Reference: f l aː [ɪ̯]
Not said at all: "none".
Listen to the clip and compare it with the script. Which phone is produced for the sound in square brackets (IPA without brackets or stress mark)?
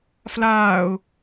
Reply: ʊ̯